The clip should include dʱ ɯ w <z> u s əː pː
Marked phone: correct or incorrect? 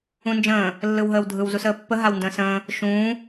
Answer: correct